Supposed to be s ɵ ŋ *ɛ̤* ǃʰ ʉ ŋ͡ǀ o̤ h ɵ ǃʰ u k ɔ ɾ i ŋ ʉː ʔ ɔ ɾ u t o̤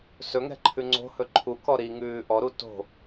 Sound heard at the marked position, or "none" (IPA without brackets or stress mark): ɛ̤